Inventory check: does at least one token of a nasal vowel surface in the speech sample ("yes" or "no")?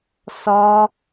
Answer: no